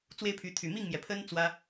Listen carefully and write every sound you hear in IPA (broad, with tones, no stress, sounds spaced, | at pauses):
t͡s w e˥ ɪ̯ pʰ y˧˥ t̪ʰ y˨˩ m i˥˩ ŋ m j ɛ˩ pʰ ə˥ n t͡s w ä˥